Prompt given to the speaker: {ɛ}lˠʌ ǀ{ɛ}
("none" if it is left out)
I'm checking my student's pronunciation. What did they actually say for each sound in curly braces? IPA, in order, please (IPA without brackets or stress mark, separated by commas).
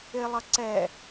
ɪ, ɛ